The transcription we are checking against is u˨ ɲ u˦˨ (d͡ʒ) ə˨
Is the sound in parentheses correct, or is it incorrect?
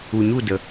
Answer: incorrect